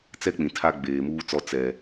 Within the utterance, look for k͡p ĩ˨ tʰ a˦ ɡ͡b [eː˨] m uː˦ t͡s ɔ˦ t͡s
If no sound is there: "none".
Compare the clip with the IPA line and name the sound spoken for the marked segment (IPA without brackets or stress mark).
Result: eː˨